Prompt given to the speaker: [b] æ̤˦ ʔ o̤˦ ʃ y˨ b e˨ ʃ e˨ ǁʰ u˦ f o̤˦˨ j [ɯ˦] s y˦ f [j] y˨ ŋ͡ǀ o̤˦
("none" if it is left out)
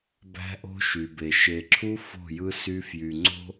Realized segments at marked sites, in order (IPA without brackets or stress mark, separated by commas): b, ɯ˦, j